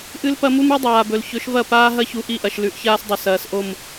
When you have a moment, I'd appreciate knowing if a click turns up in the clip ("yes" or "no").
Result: no